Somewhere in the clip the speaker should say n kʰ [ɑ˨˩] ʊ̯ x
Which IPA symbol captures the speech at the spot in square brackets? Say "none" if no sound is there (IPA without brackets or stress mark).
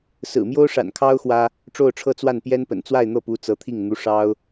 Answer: ɑ˥